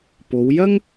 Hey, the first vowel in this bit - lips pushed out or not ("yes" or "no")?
yes